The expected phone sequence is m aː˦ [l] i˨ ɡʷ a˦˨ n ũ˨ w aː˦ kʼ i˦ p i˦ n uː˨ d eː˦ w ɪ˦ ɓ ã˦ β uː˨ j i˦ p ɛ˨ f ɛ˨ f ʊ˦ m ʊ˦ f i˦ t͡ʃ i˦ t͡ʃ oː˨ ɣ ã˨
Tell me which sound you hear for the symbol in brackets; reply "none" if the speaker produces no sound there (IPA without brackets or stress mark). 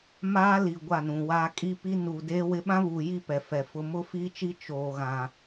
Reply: l